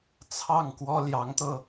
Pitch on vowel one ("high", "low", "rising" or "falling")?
falling